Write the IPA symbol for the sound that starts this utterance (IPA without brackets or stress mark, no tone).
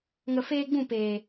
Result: ŋ